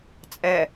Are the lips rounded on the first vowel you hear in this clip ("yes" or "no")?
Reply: no